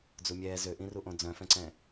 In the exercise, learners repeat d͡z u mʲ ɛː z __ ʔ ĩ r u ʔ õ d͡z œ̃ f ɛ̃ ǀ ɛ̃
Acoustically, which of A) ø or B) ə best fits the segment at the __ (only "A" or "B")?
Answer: A